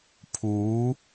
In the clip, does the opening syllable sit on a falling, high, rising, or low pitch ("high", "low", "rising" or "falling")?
rising